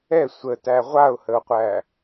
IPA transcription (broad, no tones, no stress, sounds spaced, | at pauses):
ɛ sʷ ə t æ ʁʷ a ʊ̯ h ə ʊ̯ qʷ æ